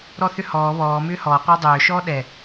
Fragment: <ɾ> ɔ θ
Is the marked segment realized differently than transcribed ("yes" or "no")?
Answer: no